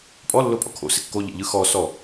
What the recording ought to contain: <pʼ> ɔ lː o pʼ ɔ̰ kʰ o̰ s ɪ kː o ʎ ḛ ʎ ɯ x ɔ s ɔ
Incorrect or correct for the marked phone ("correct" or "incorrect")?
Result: correct